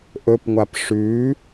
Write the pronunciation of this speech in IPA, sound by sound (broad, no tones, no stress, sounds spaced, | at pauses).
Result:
ʔ ɵ p ŋʷ a p ʂ ʉ